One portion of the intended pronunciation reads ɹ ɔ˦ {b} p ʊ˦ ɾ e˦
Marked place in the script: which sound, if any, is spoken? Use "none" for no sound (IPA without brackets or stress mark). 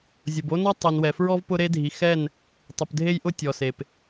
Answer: v